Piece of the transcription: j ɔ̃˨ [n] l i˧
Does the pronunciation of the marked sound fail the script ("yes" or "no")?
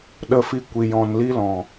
no